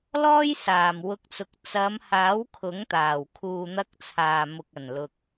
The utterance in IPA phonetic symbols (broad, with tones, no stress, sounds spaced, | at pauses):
l ɔː˥ j s aː˨ m w ʊ˧ k̚ t͡s ʊ˨˥ k̚ t͡s ɐ˨˧ m h aː˨˥ w kʰ ʊ˨˥ ŋ t̪ aː˨˩ w kʰ uː˨ n̪ ɐ˧ k̚ t͡sʰ aː˨˩ m ʊ˨ k̚ ɐ˨˩ n l ʊ˨ k̚